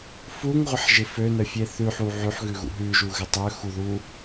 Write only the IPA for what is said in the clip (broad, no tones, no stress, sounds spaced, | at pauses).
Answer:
f u ŋ ʁʷ ɪ ħ ʒ ɪ f ø n ə fʲ e θ ʉ ħ u ʕ ʉ ħ ɣ ʉ ɣ ṵ ɦ ʉ ʒ u ɣ ɪ tˤ ø x u ð u